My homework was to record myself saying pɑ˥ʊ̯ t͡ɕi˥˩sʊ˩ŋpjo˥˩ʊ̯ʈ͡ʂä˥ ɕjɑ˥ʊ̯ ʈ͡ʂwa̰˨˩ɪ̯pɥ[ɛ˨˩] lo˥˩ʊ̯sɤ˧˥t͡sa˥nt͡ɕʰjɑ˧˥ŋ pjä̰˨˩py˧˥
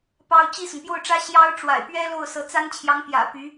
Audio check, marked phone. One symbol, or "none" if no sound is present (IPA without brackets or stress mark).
ɛ˥